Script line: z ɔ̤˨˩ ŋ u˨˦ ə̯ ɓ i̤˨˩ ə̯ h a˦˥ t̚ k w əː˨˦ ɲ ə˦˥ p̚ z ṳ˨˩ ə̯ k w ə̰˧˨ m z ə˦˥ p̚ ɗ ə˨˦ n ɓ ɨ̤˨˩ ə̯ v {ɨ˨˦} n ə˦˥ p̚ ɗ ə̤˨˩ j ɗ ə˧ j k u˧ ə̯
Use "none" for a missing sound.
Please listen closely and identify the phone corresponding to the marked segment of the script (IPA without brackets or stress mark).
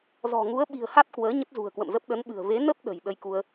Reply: e˨˦